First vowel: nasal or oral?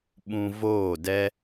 nasal